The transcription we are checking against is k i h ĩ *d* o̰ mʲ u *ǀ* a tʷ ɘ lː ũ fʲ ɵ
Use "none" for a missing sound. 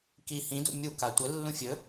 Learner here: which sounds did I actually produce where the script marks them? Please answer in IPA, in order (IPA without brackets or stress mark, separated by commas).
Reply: d, k